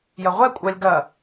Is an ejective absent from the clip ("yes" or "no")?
no